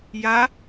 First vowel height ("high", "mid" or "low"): low